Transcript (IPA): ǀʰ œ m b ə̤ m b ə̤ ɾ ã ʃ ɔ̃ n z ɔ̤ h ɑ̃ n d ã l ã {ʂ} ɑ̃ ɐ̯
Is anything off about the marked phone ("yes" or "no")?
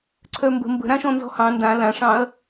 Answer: no